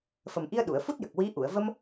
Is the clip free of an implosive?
no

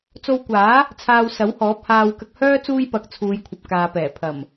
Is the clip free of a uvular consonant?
yes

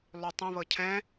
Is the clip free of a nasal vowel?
no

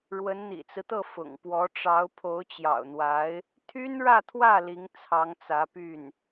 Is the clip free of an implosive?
yes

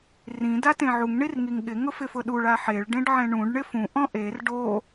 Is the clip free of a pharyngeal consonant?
no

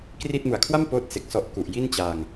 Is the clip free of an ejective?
yes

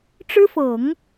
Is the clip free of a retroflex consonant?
no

